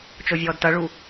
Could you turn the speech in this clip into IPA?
t͡ʃovʲɔːdtʌɭu

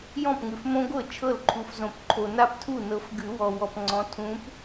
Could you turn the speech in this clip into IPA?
jɔ̃˥˩pŋʉ˨fmõ˦ɡʷɤ˥˩ t͡ʃʰɤ˥˩lǃʰu˨fzõ˨˩˦p ǃʰo˨na˥˩p tʰu˥˩nɤ˨˦fɡʉ˨˩˦wɔ˨ wɔ˨pŋ͡ǀɔ̃˨˦ tʰũ˨˦p

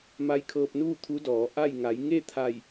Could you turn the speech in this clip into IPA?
ma˧˥jkʰɤː˧p̚nuː˥˨ t̪ʰu˧˥dɔː˩˧ʔa˥˨j ŋa˩˧jŋe˥˨t̪ʰa˧˩j

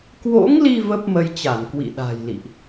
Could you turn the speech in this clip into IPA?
kwo̰˧˥ŋli˧ və˦˥p̚mə˧jt͡ɕa˧˩n kwḭ˧˨ɗa̤˨˩jlḭ˧˨ʔ

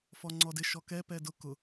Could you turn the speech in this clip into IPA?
fɔŋ͡ǀɔdɪ ʃɔkɛ pɛdʊ kʊ

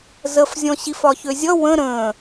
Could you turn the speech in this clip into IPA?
zəfzʲɔ̃ ɕifɒçøzʲʌ wə̃ ɾə̃ː

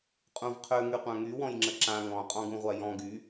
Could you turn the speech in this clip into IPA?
qʼũvqʰø ŋyqʷãŋy wɔ̃jŋ͡ǁəǁã ŋɔ̃ qʼɔ̃ɡũʁʷajɔ̃ ɡy

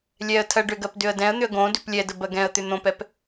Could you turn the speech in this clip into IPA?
lʲɛə̯tʰɜɖʏɡɜp dʏə̯dɛ̃ə̯n̪ʏə̯ ɡõdʏp lʲɛdə bɜɡɛ̃ə̯t̪ʏ n̪õpɛp

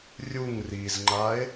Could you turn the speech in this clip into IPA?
rʲuŋ rizŋ͡ǃae̯

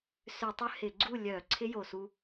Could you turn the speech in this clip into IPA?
sʏ˧˩˧tˤʏ˧ hɪ˧˩˧ɡ͡ǀu˥˨ lʲœ˧˩˧ ǀʰɪ˦˥jo˨˩su˧

